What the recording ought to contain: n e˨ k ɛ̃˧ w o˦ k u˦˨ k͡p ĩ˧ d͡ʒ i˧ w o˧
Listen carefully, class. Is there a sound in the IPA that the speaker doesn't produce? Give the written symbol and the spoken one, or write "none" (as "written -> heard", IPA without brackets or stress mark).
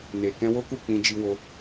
none